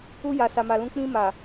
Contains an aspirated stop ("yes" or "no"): no